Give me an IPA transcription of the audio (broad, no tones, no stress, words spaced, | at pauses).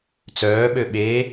t͡sœːɓø ɓe